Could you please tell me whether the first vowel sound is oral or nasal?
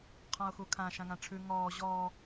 nasal